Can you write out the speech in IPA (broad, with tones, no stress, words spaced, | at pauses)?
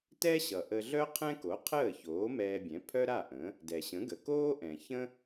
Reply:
tɛ˥ɕʌ˩ ʔə˧ɮœ˥qʰɛ̃˥ko˩˥ qʰəː˥˩çoː˩˥ mɛː˧bʲɛ̃˩˥ pʰœ˥ɾa˥˩ʔə̃˩˥ | dɛ˩ɕə̃˩˥ɡə˩ koː˥ʔɛ̃˩çə̃˥